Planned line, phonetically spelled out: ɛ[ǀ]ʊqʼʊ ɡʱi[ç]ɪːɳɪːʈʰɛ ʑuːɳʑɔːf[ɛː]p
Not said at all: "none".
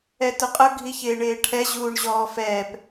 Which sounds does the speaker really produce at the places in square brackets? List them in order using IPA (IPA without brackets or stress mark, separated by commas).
t, ç, ɛː